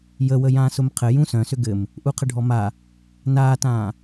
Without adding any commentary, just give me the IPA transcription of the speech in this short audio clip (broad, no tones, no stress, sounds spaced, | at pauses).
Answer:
j ə w ə j ãː s ʊ m qʰ ɘ j ũ s œ̃ s ʏ ɡ ɘ m | ʔ u qʰ ə ɖʱ ɔ m a | n aː t ãː